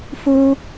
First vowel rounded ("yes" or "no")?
yes